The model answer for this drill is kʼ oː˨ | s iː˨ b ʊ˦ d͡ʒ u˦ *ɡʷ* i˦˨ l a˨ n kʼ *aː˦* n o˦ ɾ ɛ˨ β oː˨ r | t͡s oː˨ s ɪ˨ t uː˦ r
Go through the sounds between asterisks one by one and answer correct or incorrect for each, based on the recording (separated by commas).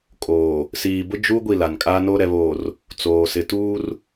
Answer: correct, correct